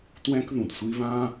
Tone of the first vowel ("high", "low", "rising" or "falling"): high